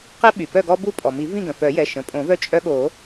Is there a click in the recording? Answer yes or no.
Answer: no